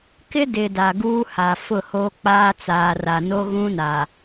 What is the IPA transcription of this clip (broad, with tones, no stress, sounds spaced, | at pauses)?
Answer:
k ɪ˦ d ɪ˨ d a˨ ɡ uː˦ h a˨ f ʊ˦˨ h oː˦ k͡p aː˦ t͡s aː˨ r a˨ n o˦ ɣ ũ˦ n aː˨